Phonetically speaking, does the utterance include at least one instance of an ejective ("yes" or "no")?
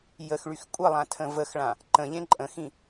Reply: yes